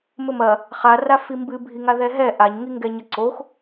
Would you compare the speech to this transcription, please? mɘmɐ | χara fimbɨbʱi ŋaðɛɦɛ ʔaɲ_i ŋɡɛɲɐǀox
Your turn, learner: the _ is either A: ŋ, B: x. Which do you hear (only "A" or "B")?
A